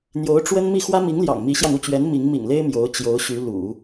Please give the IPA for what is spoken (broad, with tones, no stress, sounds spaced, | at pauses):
n̪ j o˧˥ ʊ̯ ʈ͡ʂ w ə˥ n m i˥˩ x w ä˥ m i˧˥ ŋ l j ɑ̰˨˩ ŋ m i˧˥ ɕ j ɑ˧ ŋ u˥˩ t͡ɕ ɥ ɛ˧˥ n m i˧˥ ŋ m ḭ˨˩ ŋ l e˥ ɪ̯ m j o˧˥ ʊ̯ t͡ɕ j o˧˥ ʊ̯ ɕ y˧˥ l ṵ˨˩˦